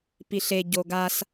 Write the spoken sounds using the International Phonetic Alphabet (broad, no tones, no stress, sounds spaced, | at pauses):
p i ɬ e ɟ o ɡ a s